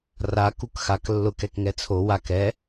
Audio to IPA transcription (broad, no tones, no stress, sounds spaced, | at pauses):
r a k u k x a k lː ʊ k ɛ k ŋ ɛ t͡sʰ o w a k ɛ